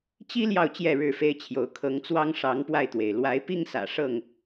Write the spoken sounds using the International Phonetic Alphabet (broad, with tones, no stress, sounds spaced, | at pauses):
t͡ɕ i˦ l j ɑ˨ ʊ̯ t͡ɕ j ɛ˥˨ ɻ ɻ̩˥˨ f e˦ ɪ̯ t͡ɕʰ j o˨˦ ʊ̯ kʰ ɤ˨˦ ŋ t͡s w ɑ˦ ŋ ʂ ɑ˨˦ ŋ p w a˧ ɪ̯ t̪ w e˩ ɪ̯ l w a˨˦ ɪ̯ p i˦ ŋ s ä̰˨˩ ʂ ɤ˥˨ ŋ